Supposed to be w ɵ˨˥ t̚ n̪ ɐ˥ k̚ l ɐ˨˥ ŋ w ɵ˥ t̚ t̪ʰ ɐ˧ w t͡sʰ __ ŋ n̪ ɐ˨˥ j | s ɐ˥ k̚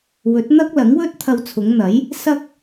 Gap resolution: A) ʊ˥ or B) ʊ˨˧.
B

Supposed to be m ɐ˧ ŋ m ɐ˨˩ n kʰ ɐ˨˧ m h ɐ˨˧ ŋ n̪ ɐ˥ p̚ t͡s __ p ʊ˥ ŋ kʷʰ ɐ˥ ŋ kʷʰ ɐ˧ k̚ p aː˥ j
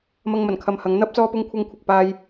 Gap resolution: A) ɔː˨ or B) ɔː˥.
B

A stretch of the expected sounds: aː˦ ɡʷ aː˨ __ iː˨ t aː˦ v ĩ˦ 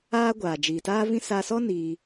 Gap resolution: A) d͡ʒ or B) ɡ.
A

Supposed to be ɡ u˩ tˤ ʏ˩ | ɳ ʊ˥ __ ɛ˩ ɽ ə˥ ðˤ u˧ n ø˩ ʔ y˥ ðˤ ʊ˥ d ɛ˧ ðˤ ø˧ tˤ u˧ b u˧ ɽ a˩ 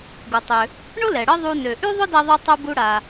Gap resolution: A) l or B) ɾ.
A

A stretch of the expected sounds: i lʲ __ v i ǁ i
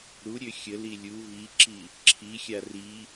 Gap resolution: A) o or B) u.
B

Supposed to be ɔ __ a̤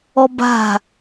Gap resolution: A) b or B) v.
A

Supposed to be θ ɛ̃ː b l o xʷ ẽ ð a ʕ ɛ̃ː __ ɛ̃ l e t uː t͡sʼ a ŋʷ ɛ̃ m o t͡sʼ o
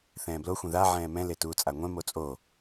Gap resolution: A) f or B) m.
B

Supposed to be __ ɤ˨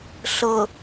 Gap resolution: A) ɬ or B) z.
A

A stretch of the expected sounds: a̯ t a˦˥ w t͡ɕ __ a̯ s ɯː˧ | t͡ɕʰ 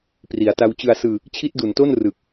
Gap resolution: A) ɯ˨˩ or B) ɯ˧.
B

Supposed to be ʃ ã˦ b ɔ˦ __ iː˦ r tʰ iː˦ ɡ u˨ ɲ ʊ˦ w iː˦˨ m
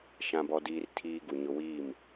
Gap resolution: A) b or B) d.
B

